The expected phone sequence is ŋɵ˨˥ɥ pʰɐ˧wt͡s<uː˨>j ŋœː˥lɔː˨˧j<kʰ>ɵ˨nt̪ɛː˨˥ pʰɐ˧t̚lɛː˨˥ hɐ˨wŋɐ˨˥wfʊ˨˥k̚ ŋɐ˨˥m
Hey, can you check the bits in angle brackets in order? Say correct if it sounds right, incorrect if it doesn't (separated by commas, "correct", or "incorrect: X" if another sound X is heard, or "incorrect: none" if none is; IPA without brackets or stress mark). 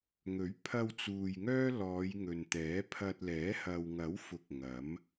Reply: correct, incorrect: ŋ